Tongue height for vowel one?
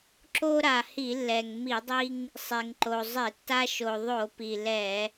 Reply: mid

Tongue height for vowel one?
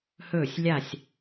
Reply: mid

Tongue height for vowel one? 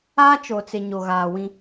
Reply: low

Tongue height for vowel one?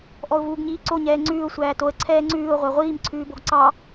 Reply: mid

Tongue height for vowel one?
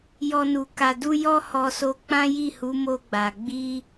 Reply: mid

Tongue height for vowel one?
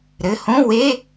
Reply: mid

